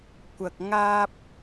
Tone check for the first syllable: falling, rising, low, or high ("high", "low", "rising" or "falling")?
low